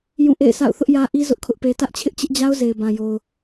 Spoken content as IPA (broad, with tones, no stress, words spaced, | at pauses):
jũ˦˨ʔḛ˦˨ɪ̯sʰa̰˦˨ʊ̯ θʊ˦ʔjä˦ʔi˦ zʊ˦ʔkʰʊ˦ʔpe˦ tä˦ʔt͡ɕʰɪ˦ʔt͡ɕɪ˦ʔd͡ʑa˦ʊ̯ ze˨ɪ̯bã˨jo˨ʊ̯